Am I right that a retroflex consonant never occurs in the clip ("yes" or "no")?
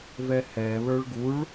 no